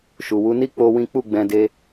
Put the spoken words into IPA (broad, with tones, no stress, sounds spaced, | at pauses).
ʃ u˨ w u˨˦ n i˦ k͡p o˦ w ĩ˦ k͡p u˦˨ ɡ͡b ɛ̃˧ d e˧